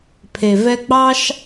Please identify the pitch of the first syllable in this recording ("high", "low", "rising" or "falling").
low